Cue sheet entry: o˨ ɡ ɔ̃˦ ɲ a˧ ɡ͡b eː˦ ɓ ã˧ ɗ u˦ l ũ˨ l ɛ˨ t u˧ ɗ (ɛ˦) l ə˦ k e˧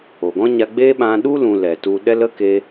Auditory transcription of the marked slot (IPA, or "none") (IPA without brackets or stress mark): ɛ˦